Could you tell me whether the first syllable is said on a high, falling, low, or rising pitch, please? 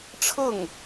falling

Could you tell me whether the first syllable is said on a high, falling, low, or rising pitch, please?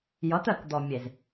rising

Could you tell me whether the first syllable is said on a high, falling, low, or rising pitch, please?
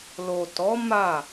low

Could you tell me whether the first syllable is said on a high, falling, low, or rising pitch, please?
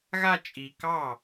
falling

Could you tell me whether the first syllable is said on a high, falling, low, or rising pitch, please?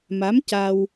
rising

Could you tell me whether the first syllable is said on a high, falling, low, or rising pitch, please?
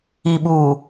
low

